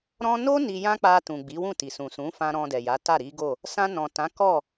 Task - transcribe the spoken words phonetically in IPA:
ɾɔ̃˧no˦ ni˧jã˦k͡pa˧tũ˨ ɡ͡bi˨˦wũ˦˨ti˨ sũ˨sũ˨˦fã˧ ɾɔ̃˧dɛ˨ja˨˦ ta˦˨ɾi˨˦ɡo˦˨ | sã˧nɔ̃˨tã˨˦ kɔ˦˨

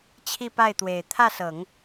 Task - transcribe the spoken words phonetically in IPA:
t͡ɕʰi˥˧pa˥˩ɪ̯t̪we˨˩ɪ̯ t̪ʰä˥˩sɤ˨˩˦ŋ

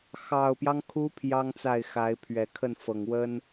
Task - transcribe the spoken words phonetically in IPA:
xɑ˨˩ʊ̯pjɑ˦ŋkʰu˧˥ pʰjɑ˥ŋt͡sa˥˩ɪ̯ xa˧˥ɪ̯pʰɥɛ˨˩ kʰə˥˩nfɤ˨˩ŋwə˥n

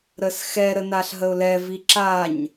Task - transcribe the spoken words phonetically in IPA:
ɾəsxɛ ɾənaɬɦəʊ̯lɛ viǁaɲ

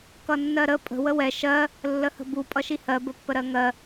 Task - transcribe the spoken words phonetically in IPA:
kʌnːɜɾə pʼə̤ wəwɛ ʃɜ | lːəhə̤bu pʼʌʃihɜ bəpːəɾɜŋɜ

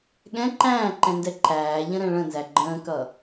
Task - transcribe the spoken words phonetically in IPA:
ɠɛ̃ ǃæ̃ːǃɛ̃ndɛ ǃæːʎə̃ɾɛ̃ ɭə̃nzæ ɡ͡ǃə̃ːkʌ

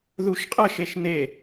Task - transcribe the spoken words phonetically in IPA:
ðuʃqʼəʃeʃ n̪e

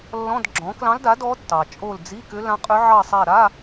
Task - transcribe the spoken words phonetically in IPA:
lːɔ̃˧˥˧dɡ͡ǁɔ̃˩˥ klɑ̃˧˥lda˩˥ dɔ˧˥ tːɑ˩t͡ʃʼo˦˨l d͡zi˧˥˧kʏ˧˥lã˧˥qʼʏ˧˥ ʕɑ˦˨sˤa˦˨ɾa˧˥˧

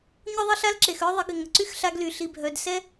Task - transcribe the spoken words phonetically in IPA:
ɲʊ˦ðˤə˦ɬa˦lǁe˨x œ˦ðˤɪ˨˦ɡɪ˨ŋə˨ ǀy˦xɬa˧ɡ ly˨ ɬi˨bʱœ˨dsɛ˦

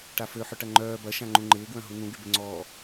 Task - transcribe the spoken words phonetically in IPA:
ʈaføħʏʈɐ ŋ͡ǃœː bɐʃã ŋ͡ǃũŋ͡ǃɪːɡwœ̃ ɦun̪ũɡybɪ ŋ͡ǀɔ

